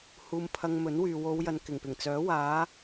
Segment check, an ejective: absent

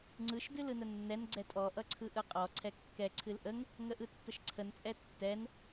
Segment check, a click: present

